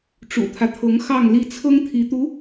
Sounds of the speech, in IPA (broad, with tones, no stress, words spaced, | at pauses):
ʈ͡ʂṵ˨˩t̪ʰä˦t̪ʰɤ˧˥ŋ xɑ˥˧ŋli˥˩ t͡sʰɤ˥ŋt̪ʰi˧˥t̪u˧˥